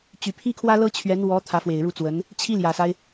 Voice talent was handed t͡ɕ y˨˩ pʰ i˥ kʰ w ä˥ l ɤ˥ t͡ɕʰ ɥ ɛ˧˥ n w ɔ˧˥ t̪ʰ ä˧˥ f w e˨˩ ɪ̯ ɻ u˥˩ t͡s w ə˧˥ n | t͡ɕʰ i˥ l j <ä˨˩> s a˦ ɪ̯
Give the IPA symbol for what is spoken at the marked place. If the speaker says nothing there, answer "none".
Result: ä˨˩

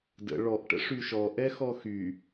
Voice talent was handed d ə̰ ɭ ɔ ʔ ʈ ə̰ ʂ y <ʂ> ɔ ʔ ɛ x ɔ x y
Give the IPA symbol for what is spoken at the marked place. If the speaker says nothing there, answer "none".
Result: ʃ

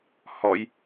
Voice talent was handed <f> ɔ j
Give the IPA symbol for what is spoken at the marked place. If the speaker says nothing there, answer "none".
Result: h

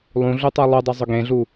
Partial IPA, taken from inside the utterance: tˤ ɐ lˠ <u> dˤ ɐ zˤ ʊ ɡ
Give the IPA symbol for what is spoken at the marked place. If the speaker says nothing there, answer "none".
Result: u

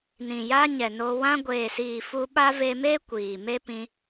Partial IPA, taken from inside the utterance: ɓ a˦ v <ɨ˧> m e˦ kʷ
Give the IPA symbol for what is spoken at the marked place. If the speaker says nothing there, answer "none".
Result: e˧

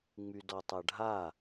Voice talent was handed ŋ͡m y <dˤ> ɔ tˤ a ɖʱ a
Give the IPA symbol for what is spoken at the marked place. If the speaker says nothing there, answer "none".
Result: d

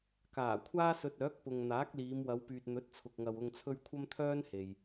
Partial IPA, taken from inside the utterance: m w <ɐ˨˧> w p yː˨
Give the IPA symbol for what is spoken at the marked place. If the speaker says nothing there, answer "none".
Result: ɐ˨˧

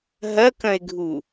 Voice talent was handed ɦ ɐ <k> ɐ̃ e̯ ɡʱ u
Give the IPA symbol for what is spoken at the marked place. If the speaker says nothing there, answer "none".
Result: k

